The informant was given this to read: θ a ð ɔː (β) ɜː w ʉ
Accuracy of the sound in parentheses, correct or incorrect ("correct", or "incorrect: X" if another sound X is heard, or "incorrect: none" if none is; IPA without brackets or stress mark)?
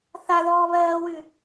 correct